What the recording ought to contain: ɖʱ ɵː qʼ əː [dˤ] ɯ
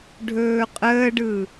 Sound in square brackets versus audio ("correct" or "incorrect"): incorrect